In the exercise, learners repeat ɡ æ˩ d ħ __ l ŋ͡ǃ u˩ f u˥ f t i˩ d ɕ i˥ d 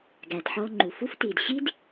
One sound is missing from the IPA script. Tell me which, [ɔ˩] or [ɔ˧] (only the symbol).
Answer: ɔ˧